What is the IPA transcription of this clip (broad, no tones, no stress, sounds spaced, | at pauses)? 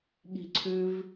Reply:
ɠ i̤ ǀʰ ʉ v